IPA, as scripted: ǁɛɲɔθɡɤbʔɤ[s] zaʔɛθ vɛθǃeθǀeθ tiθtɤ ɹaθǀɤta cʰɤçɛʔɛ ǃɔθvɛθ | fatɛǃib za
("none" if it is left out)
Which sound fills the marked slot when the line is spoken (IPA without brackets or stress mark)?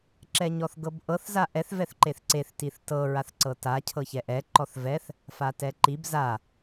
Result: θ